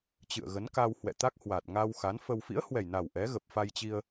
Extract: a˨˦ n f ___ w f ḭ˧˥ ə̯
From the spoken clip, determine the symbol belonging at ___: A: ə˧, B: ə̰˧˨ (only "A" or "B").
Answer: A